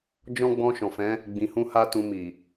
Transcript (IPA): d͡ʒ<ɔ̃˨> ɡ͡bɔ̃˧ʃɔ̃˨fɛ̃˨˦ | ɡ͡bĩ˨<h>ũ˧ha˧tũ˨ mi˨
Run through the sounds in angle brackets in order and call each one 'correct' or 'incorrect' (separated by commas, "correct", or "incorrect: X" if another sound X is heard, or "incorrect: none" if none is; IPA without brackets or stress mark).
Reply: incorrect: ɔ̃˦, correct